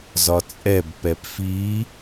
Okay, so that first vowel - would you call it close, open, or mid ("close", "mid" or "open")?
open